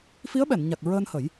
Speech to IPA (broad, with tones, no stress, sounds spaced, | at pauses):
f i˧˥ ə̯ ɓ ɛ˨˩˨ n ɲ a˨˩ k̚ ɹ əː˧ n h ə˨˩˦ j